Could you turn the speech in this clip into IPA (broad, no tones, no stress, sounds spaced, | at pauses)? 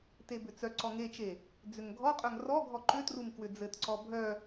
t e b ʏ t͡s œ ǀ ɔ ŋ e t͡ʃ e | d͡z ʏ ŋ ɡʱ ɔ qʼ œ ŋ r ɔ ɡʱ ɔ ǃ ʏ t r u m k w ʏ d͡z ɘ t ǀ ɔ bʱ œ